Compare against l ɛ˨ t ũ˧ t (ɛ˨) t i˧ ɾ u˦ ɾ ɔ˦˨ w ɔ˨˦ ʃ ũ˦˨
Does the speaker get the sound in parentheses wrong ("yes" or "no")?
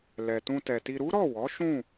no